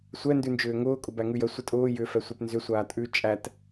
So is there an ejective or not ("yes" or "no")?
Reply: yes